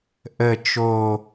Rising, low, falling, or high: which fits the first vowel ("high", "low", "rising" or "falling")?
low